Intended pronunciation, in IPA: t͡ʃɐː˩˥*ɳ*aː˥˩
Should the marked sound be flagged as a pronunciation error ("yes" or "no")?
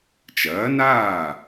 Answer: yes